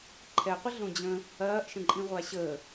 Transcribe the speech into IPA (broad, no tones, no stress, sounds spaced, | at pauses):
ǃʰ ɛ qʷ ə ɮ õ d͡ʑ ə̃ | ɐː ʔ ʃ ə̃ ǃʼ ĩ ʁʷ a ɕ əː